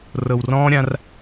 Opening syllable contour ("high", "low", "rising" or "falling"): low